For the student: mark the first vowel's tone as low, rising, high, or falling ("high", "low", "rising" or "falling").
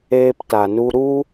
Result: high